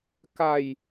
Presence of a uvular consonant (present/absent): absent